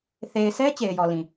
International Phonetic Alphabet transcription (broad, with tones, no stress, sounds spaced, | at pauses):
θ e˨ ɪ̯ s ɛ˦ t͡ɕ e˨ ɪ̯ j ɔ˨ l ĩ˨